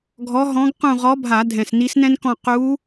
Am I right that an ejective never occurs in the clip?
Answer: yes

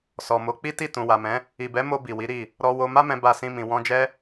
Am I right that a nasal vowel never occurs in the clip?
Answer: no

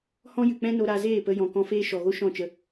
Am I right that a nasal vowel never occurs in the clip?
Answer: no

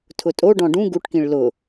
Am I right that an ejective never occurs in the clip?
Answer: no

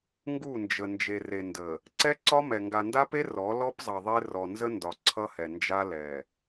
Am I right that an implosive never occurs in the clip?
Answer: yes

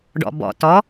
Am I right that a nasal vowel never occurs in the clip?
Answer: yes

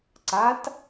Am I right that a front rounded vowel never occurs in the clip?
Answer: yes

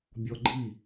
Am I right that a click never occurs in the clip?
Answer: no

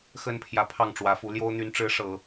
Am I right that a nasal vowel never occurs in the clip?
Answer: yes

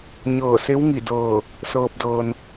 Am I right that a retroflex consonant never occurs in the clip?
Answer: yes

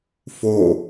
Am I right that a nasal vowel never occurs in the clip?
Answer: yes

